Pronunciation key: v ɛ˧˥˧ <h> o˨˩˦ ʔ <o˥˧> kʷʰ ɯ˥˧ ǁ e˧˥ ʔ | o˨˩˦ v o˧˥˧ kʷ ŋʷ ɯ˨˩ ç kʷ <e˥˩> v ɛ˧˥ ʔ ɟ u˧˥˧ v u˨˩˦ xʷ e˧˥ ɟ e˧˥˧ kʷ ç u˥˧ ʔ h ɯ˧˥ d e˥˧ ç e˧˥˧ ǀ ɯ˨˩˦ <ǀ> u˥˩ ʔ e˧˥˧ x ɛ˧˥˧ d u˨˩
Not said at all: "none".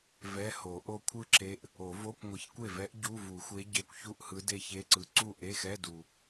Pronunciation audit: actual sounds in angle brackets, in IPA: h, o˥˧, e˥˩, ǀ

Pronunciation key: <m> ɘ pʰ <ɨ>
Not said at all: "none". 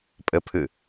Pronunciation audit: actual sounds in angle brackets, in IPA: pʼ, ɨ

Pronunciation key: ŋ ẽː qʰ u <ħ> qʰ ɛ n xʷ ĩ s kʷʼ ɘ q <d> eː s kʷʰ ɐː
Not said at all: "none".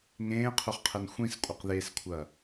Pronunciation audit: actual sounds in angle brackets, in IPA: χ, ð

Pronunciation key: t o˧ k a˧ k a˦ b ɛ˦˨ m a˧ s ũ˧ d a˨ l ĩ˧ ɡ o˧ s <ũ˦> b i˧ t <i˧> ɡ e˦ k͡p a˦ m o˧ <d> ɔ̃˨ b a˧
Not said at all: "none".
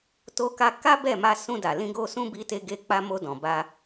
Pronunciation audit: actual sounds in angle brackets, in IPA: ũ˦, e˧, d

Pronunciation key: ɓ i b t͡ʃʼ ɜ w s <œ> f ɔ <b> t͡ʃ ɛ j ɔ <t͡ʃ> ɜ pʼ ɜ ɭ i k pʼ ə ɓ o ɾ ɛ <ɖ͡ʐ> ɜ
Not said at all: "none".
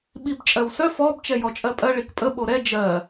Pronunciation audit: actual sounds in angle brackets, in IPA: œ, b, t͡ʃʼ, d͡ʒ

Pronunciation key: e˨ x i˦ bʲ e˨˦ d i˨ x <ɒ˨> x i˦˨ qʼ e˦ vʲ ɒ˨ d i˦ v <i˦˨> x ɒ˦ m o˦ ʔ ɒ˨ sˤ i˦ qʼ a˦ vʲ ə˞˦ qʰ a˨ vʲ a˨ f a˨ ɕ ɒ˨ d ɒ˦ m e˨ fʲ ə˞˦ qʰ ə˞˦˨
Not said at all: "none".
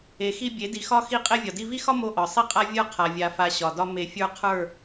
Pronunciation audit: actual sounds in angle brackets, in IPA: ɒ˦, i˦

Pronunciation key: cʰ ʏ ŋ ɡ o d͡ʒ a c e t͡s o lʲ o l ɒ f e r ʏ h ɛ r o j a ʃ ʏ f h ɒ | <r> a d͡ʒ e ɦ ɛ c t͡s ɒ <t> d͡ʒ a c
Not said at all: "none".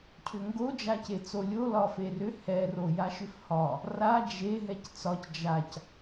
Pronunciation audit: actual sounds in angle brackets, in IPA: r, c

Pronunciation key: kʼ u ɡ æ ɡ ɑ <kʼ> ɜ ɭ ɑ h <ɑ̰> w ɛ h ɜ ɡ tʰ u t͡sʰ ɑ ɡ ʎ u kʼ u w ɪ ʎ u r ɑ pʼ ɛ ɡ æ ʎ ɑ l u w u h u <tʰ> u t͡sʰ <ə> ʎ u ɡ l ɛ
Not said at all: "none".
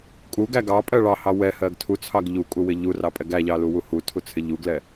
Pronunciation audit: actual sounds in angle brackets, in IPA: pʼ, ɑ, tʰ, ɪ

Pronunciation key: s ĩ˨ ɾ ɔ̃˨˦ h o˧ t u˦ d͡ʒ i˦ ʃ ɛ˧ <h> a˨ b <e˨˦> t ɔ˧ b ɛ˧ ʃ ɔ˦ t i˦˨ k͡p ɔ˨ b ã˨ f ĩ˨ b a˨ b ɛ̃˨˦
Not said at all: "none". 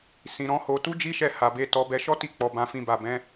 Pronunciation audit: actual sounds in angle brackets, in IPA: h, e˨˦

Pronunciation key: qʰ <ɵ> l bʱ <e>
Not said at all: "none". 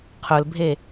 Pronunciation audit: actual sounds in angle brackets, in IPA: ɵ, e

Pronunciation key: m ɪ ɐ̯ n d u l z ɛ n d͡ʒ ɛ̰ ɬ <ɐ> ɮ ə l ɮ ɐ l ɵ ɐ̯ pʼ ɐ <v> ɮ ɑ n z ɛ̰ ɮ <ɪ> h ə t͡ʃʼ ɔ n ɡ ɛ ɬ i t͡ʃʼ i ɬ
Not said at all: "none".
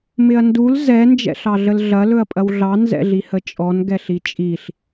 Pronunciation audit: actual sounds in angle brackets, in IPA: ɑ, w, i

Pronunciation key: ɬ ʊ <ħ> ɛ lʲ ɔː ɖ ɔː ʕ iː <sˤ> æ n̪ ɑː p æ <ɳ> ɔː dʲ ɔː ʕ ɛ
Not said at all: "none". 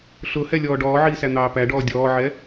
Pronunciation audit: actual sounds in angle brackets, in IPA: h, s, ɖ

